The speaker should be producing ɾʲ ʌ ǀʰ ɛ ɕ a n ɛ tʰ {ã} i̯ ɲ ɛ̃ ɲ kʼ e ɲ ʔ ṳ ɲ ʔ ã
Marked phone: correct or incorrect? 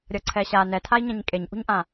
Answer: incorrect